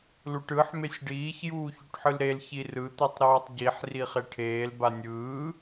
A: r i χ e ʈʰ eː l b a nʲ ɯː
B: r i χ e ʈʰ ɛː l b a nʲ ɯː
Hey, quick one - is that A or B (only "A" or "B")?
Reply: A